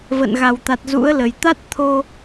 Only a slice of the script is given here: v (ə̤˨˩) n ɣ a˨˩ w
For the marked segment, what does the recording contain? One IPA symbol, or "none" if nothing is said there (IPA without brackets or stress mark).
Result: ə̰˧˨